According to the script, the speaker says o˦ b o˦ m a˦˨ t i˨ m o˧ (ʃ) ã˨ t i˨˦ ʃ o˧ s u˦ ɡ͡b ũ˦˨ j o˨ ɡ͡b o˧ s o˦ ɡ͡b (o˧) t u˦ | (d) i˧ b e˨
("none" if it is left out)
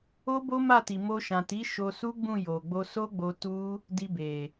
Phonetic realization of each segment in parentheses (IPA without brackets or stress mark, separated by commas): ʃ, o˧, d